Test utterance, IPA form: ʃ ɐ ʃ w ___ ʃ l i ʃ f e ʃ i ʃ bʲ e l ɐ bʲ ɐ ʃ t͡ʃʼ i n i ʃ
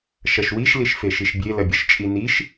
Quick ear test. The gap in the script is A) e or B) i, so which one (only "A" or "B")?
B